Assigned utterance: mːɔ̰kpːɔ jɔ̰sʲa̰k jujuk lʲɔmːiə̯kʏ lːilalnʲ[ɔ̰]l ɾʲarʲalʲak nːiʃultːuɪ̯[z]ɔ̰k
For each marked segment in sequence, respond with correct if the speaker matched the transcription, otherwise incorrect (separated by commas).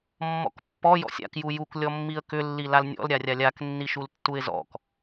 correct, correct